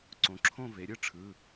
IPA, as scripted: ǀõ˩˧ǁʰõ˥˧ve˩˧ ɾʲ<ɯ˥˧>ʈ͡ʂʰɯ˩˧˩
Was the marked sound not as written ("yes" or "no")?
no